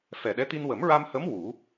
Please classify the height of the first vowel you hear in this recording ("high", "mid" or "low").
mid